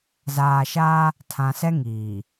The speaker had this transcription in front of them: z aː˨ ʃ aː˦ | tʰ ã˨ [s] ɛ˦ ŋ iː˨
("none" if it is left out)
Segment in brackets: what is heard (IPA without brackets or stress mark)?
s